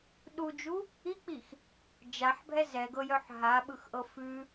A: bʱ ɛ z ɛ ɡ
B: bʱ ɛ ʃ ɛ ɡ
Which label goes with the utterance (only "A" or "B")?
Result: A